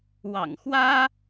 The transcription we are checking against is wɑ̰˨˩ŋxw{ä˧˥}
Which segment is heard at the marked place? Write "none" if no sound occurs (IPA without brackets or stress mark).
ä˥